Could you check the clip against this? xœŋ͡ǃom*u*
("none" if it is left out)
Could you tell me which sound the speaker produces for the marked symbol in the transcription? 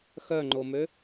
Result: ø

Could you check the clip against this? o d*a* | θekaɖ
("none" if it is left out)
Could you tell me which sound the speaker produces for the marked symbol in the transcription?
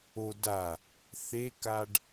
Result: a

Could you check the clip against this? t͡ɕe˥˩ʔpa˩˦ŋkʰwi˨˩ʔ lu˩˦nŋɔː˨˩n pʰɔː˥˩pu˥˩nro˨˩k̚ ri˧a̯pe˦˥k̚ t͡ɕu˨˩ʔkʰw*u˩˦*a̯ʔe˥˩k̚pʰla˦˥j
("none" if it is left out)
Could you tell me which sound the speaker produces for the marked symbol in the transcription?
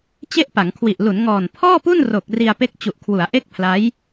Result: u˩˦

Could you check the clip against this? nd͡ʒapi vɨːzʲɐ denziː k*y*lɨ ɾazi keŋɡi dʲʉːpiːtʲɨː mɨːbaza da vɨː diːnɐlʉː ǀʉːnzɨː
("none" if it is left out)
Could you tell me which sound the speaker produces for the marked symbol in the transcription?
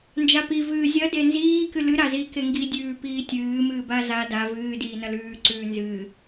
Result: ɨ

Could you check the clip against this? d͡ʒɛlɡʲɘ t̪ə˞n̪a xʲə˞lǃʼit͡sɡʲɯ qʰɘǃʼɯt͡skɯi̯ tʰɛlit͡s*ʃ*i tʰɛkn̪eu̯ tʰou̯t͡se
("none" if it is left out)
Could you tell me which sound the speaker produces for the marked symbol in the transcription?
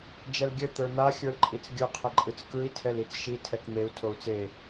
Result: ʃ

